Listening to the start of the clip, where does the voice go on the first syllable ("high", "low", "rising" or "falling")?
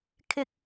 high